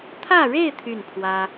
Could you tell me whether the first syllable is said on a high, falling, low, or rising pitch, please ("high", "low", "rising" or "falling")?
falling